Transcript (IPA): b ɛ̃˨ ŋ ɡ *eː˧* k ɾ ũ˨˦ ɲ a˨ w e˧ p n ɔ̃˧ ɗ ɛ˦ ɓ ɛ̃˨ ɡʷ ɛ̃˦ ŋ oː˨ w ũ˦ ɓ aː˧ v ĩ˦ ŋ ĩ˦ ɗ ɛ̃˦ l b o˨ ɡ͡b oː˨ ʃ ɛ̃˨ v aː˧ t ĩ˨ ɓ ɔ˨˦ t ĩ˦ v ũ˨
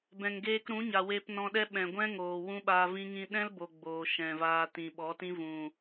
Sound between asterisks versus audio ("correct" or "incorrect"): correct